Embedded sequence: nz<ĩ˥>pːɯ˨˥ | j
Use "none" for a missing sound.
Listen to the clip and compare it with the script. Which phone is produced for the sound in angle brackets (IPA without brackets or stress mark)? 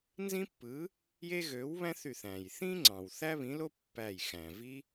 ĩ˥